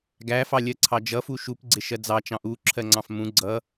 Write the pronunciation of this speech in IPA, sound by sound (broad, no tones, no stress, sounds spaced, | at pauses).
ɡ æ f ɑ lʲ ɜ ǀʰ ɑ d͡ʒ ʌ f u ʃ u p ɡ͡ǀ ɪ ʃ ɜ d͡z ɑ t͡ʃ ɑ̃ ʔ u ǁʰ ɜ ŋ͡ǀ ɑ̃ f m ũ ɡ͡ǀ ʌ